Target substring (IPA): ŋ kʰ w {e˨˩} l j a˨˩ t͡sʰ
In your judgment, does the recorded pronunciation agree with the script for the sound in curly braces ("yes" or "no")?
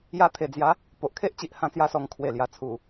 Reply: yes